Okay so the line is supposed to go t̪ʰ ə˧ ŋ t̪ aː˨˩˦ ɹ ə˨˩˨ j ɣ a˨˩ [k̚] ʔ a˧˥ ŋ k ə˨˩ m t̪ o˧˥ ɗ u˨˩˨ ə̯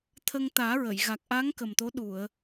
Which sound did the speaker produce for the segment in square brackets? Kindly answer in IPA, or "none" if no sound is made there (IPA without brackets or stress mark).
k̚